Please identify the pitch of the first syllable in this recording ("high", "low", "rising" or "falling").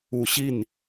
low